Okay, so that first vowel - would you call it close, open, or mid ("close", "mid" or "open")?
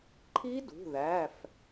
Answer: close